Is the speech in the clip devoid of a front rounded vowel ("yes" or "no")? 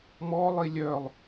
no